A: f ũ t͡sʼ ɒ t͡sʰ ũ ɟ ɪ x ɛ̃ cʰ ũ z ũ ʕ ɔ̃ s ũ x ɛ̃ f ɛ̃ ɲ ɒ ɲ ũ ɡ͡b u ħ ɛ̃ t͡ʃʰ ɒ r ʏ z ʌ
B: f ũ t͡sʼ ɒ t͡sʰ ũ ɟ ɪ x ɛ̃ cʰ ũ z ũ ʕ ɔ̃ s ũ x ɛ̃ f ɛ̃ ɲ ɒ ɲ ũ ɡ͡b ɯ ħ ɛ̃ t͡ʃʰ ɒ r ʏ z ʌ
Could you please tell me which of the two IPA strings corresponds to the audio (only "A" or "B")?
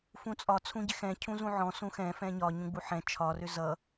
A